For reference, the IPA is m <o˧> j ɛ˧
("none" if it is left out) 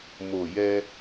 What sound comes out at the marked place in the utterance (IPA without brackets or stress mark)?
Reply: o˨˩